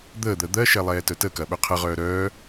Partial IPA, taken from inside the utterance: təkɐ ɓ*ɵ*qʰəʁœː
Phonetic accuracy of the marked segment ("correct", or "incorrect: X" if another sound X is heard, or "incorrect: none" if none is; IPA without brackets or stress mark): correct